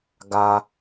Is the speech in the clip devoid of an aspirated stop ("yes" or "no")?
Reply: yes